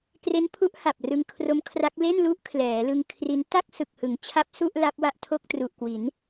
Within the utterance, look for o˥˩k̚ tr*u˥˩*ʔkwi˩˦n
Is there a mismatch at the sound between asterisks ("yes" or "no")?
yes